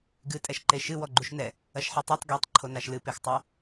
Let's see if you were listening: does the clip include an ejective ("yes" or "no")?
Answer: yes